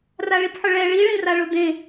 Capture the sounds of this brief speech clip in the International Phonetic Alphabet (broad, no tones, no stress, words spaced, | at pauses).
raɭipħʊɭɛ ɭiɭĩraɭʊ dẽ